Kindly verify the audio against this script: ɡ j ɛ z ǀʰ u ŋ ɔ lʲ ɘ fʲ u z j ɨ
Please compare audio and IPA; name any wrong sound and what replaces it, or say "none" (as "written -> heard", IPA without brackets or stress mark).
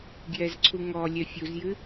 ɘ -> ɛ